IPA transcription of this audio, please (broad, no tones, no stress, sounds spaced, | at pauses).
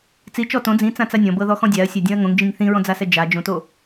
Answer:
t͡s i t͡ʃ ɔ t õ d͡z ĩ t͡s ã t͡s a nʲ ɔ̃ b ɤ ð ɔ x ɔ̃ dʲ a ɐ̯ sʲ a dʲ ɔ̃ ɐ̯ ŋ õ ŋ d͡ʒ ĩ ŋ θ ĩ ɹ ɔ̃ d͡z a s ɛ d͡ʒ a d͡ʒ õ t o